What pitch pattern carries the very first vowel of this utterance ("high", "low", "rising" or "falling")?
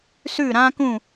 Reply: falling